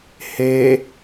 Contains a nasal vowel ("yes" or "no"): no